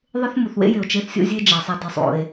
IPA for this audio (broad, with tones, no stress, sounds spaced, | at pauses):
ðˤ ɪ˥ θ m u˩ θ w ḛ˥ j ɪ˩ o̯ t͡ʃ e˥ θ sʲ o̰˥ zʲ e˥ d͡ʒ a˩ sˤ a˧ d i˩ sˤ o̰˩ e̯